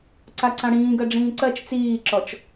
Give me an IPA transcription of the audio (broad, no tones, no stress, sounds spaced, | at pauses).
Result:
ǀ a ǀ ã ɽ ĩː ɡ ɜ ɖ͡ʐ ĩː ǀ ɜ t͡ʃ t͡s iː ǁ ɔ t͡ʃ